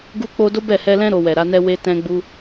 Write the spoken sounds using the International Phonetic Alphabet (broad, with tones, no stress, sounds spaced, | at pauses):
ɡ u˦ k͡p o˦ d o˦ b ɛ˦˨ h ɛ˧ l ɛ̃˦ ɾ o˧ w ɛ˨ ɾ a˨˦ n ɛ˦ w e˧ t ɛ̃˧ ɡ͡b u˧